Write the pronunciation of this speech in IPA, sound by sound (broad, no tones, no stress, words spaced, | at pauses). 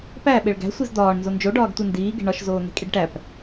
pæ ɓeɭɡæ̤ sʷizd̪ɒːɳ nzond͡ʒo ɖɒːɡtʷendiː ɡe̤ɳɒʃ zoːne̤kʼiɖʈæp